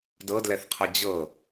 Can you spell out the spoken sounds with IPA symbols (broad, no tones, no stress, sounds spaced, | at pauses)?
d ɤ d l ɛ θ qʰ ʌ d͡ʑ ɤ